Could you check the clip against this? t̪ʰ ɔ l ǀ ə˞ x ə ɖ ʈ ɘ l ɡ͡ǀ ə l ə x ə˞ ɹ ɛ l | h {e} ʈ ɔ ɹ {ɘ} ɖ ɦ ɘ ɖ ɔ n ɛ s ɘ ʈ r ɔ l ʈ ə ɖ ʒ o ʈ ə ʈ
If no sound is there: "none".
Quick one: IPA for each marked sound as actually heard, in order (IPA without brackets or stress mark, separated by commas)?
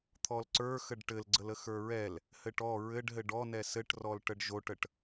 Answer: ɘ, ɘ